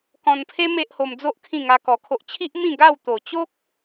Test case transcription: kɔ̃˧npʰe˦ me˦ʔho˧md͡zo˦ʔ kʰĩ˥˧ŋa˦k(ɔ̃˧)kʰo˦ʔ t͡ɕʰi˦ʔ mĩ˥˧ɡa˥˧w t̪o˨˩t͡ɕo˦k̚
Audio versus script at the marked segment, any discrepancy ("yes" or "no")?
yes